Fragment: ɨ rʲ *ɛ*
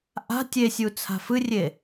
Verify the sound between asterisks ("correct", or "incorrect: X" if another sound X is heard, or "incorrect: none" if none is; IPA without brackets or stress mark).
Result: incorrect: e